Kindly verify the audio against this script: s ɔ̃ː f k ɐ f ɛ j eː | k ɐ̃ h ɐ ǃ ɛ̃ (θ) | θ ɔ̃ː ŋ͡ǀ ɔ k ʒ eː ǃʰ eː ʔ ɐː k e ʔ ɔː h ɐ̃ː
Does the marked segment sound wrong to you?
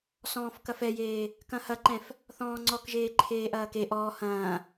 yes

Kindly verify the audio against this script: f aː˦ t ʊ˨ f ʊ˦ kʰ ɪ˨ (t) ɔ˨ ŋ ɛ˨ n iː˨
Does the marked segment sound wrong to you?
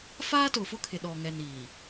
yes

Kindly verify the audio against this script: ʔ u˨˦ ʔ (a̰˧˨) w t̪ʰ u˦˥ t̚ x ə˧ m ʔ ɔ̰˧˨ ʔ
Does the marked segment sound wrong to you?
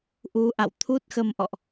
no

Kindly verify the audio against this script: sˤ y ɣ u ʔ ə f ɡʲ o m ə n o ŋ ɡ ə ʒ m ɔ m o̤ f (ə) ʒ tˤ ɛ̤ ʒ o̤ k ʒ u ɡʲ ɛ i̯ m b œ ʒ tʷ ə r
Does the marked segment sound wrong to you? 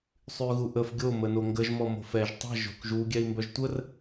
yes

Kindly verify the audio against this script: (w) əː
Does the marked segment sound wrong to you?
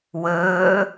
no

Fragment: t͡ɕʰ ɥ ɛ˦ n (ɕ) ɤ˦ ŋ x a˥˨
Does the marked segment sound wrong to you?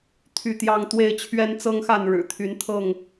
yes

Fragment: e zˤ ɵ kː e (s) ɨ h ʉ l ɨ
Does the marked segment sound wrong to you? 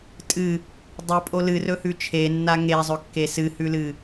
no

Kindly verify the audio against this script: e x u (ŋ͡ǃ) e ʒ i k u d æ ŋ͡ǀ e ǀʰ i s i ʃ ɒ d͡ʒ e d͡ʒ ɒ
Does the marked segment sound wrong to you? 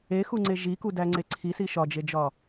yes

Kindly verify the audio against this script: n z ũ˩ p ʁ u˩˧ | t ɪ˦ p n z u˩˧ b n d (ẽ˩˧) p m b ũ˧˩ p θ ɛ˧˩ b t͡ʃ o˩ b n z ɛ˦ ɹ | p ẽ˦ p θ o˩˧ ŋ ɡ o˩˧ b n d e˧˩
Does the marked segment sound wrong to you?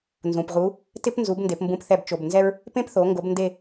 yes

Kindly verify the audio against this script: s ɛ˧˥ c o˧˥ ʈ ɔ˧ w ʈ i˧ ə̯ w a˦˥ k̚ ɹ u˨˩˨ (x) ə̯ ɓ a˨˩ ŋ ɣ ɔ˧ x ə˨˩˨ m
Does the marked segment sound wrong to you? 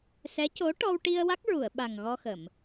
yes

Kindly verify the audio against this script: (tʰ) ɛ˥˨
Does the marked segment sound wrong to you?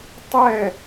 yes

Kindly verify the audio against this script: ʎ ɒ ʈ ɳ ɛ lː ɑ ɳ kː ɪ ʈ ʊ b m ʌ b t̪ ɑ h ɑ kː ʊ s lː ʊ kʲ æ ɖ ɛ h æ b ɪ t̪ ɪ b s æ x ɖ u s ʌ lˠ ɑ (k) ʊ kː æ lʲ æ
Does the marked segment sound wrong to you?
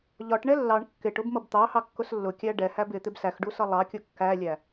yes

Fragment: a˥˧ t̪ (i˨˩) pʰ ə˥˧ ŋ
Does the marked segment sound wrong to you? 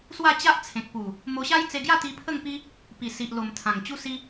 yes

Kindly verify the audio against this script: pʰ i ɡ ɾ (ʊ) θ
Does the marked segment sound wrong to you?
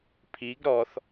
yes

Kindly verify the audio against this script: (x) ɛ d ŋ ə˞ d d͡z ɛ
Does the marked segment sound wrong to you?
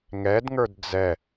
yes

